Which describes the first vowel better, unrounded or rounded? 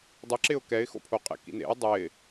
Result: unrounded